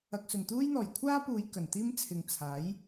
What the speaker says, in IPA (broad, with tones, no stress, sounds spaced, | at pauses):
ɐ˨ k̚ s ɵ˨˩ n t̪ uː˥ j n̪ ɔː˨˩ j kʷʰ aː˥ p uː˨˧ j k ɐ˨˩ n t̪ iː˥ m t͡sʰ ɪ˨ ŋ t͡sʰ aː˨˥ j